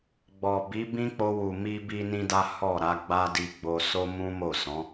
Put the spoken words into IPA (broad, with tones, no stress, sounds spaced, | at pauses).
ɡ͡b ɔ˨ b i˨˦ b ĩ˦ k͡p o˧ w u˨ m i˧ b i˦ n ĩ˦ d a˦ h ɔ˦˨ ɾ a˨˦ ɡ͡b a˦ d i˧ ɡ͡b o˧ s o˦ m ũ˦ m o˦˨ s ɔ̃˨˦